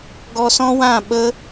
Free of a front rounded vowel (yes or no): yes